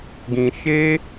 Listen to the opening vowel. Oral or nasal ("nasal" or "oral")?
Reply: nasal